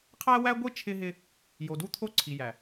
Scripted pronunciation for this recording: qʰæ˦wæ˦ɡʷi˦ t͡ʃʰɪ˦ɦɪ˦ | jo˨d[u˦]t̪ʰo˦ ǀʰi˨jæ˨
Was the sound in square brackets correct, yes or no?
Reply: yes